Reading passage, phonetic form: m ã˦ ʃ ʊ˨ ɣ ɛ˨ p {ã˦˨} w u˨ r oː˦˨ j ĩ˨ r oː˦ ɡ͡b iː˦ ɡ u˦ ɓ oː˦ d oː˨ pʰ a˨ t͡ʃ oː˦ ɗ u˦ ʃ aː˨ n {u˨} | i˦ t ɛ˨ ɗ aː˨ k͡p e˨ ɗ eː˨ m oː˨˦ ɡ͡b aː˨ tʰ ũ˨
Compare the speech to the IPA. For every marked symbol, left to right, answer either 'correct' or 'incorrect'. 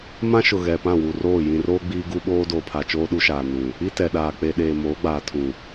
correct, incorrect

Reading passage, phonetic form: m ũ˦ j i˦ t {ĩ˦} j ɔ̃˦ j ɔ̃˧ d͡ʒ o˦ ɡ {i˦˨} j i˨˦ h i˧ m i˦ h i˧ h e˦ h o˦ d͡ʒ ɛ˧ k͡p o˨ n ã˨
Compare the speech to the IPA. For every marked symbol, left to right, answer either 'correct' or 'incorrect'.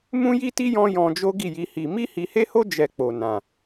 incorrect, correct

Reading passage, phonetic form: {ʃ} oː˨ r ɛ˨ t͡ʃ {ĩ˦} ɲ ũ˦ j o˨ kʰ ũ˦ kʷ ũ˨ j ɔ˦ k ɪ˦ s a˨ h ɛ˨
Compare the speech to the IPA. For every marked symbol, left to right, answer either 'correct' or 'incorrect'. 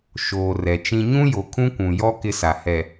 correct, correct

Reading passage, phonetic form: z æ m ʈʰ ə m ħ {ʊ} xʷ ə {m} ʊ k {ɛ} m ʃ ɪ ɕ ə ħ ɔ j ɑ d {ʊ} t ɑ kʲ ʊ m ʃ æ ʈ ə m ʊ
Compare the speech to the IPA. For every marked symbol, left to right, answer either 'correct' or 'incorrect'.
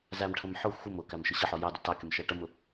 correct, correct, incorrect, correct

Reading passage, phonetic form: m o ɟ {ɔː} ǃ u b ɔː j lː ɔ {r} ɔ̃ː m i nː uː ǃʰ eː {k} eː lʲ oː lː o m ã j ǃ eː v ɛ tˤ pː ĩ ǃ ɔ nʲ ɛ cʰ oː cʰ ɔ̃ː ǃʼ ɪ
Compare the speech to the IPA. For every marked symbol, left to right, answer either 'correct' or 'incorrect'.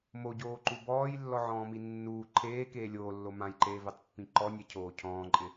incorrect, incorrect, correct

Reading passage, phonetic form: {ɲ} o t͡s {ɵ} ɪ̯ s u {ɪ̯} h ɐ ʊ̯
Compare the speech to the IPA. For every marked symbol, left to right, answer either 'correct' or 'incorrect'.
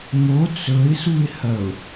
incorrect, correct, correct

